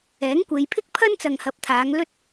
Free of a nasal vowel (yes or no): yes